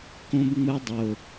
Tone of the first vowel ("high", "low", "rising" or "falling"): high